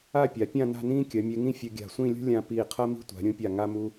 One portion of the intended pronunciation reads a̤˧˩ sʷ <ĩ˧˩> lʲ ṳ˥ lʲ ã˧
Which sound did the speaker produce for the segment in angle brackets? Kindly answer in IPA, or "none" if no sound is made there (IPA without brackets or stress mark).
ĩ˥˧